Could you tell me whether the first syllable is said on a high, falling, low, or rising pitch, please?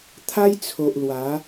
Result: high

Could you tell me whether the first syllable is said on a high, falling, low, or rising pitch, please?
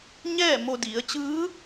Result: falling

